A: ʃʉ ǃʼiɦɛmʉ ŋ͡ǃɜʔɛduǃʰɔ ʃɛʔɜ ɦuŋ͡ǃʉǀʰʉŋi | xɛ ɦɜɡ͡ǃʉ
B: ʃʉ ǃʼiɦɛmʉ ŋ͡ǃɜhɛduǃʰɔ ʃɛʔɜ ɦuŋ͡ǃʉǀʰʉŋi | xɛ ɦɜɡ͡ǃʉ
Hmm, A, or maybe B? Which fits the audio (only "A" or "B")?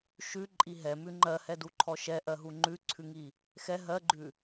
B